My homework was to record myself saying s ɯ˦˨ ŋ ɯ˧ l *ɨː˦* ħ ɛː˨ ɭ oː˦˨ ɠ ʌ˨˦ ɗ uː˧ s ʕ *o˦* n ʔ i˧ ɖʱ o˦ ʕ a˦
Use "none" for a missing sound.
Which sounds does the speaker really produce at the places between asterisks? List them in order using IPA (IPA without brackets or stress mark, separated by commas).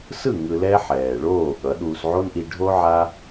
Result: ɛː˦, o˦